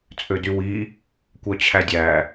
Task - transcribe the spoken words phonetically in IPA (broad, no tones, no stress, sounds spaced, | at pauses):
t͡sʼ ø d y w i | kʷ œ t͡ɕʰ æ dʲ æ